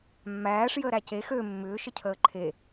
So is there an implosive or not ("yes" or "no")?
no